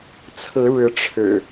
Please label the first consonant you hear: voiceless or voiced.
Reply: voiceless